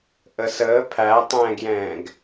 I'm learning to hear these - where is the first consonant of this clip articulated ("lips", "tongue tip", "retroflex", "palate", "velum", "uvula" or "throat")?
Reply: throat